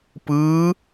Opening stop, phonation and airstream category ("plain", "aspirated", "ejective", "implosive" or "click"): plain